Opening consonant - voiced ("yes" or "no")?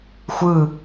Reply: no